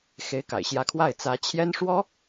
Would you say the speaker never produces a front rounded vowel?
yes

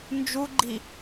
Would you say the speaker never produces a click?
no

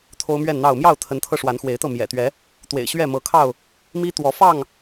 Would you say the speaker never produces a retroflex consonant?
no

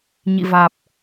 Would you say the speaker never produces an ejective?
yes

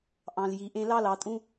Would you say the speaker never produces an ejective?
no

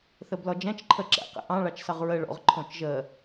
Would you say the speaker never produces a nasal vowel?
no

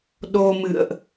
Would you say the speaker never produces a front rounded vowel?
yes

